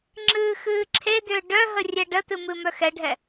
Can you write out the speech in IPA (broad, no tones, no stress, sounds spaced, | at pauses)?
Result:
ŋ͡ǁ ɨː x ɨː ǁʰ e d ʏː ɖ œ ɦ ə rʲ ɛ ɖ ə t ɨ m ɨ m œ x ɛ ɖʱ ɛ